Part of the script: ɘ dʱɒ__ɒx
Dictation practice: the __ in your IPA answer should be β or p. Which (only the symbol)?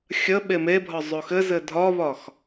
β